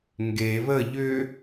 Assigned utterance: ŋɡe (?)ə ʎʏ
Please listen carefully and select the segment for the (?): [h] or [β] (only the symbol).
β